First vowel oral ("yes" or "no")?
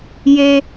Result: yes